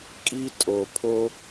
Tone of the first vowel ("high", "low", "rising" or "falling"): high